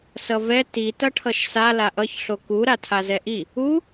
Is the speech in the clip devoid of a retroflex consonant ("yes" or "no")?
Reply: no